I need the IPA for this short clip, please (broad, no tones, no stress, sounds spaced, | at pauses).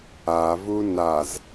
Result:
a v u n a z